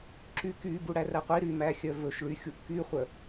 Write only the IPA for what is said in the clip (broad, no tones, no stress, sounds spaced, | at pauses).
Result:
ǁ y k y b u ɽ æ r æ qʷ i ɾ y m æ xʲ œ v ɵ ʃ ɭ y xʲ u ʔ k y χʷ œ